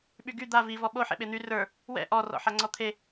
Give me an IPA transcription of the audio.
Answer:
ɓ y ɡ y d̪ a v i v ɔ ɓ o ħ ḛ ɓ e n̪ y r ə˞ | w ɛ̰ ʔ ɔ r ɔ̰ ħ a ŋ͡ǀ ɔ t̪ʰ e

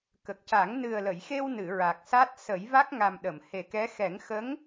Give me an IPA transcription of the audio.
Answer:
k ə˨˩ k̚ c a˨˩˦ ŋ n ɨ˨˩ ə̯ l ə˨˩˨ j x e˧ w n ɨ˨˩˨ ɹ a˨˩ k̚ s a˦˥ t̚ s ə˨˩˦ j v a˦˥ k̚ ŋ a˨˩ m ɗ ə˨˩˨ m h e˨˩ k ɛ˧˥ x ɛ˨˩˦ ŋ x ə˧˥ ŋ

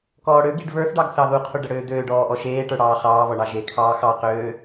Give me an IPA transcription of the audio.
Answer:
k ɔː ɽ ø ɡ i ɖ β ə˞ θ ɖ ɑ ɡ θ ɑ ð u qʰ u ɖ ə ɽ øː d̪ øː ɖ ɔː ʔ ɔ ʃ eː ʈ ə˞ ɽ ɑː χ ɑː β ɔ ɳ ɑ ʒ e kʰ ɑː x ɑ q øː

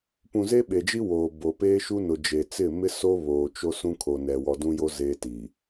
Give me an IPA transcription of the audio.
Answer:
p ũ˨ z e˦ ɓ e˨ d͡ʒ i˦ w oː˨ b o˨ p eː˦ ʃ u˦ n ʊ˨ d͡ʒ e˨ t͡s ɪ˦˨ m ɪ˦ s o˦ β oː˨ t͡ʃ o˦ s ũ˦ kʰ o˨ n ɛ˨ w ɔ˨ d ũ˦ j o˦ z eː˦ t i˨

